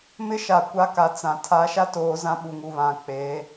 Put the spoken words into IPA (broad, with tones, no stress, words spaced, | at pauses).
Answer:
mɪ˦ʃa˨kʷa˦ ka˨t͡sã˨ tʰa˨˦ʃa˦ toː˨˦zã˦ɓu˨ŋu˨ βã˨k͡pe˨˦